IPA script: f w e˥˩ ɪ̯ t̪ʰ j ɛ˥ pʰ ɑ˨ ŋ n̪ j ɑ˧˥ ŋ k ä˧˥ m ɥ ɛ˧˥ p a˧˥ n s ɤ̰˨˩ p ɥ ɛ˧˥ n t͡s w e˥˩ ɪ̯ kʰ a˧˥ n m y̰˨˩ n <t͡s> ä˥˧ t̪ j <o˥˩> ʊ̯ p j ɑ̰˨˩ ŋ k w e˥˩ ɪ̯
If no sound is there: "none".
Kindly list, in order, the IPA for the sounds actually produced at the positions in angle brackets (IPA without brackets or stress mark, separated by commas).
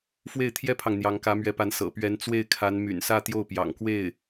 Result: s, o˥˩